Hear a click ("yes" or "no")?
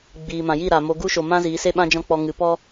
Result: no